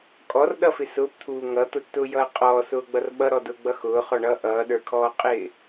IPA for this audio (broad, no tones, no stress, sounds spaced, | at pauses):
kʼ ɔ r ɗ ʌ f ɪ s ʊː p t̪ʰ uː ŋ ʌ t̪ ʊ tː ʊː j ʌː qʼ ɔː s ʊː ɡ͡b ʌ r ɓ ʌ ɾ ɔ d ʊː ɡ͡b ʌ x ʊː χ ɔ ɳ ʌː ʔ ʌː ɗ ə˞ kʰ ɔː qʼ ɪː